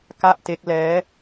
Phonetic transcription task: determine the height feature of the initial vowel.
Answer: low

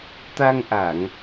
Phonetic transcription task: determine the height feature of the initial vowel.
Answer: low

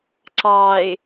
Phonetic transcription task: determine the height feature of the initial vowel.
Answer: low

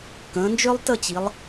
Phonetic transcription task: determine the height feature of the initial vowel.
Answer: mid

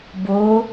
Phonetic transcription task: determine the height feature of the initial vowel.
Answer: mid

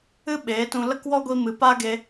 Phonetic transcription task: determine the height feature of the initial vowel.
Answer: high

